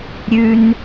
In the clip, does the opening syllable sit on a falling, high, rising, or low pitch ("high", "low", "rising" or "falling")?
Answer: low